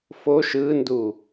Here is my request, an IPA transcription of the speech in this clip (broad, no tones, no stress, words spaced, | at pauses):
foʃ ɯndu